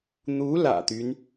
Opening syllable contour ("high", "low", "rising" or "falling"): rising